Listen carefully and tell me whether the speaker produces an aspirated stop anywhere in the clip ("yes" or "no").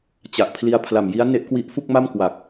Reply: yes